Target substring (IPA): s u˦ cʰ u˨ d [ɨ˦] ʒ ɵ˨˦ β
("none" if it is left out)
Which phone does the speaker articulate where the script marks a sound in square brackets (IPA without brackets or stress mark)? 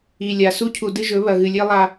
ɨ˦